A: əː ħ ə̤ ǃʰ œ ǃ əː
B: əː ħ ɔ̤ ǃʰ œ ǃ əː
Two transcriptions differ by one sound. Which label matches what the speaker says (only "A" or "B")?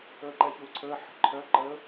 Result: A